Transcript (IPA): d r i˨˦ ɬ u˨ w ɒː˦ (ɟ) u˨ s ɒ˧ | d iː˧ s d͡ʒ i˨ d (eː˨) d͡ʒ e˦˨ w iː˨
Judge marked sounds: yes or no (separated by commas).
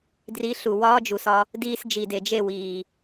no, no